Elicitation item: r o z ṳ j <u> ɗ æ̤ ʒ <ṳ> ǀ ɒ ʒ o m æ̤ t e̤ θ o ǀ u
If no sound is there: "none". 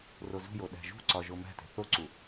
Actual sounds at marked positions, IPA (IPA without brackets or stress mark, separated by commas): o, ṳ